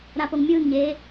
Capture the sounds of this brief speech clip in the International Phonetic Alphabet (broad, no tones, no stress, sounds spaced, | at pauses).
ɾ a p o ŋ mʲ ɯː ŋ ɲ eː